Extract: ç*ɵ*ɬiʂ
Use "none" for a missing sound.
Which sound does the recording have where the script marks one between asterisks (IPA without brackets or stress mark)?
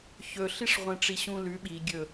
ɵ